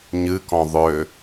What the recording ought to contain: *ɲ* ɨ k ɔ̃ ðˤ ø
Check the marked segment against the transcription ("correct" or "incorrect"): correct